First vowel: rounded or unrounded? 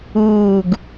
rounded